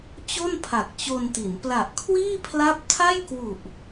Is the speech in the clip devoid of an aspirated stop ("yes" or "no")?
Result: no